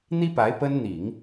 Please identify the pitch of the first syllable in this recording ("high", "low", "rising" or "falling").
high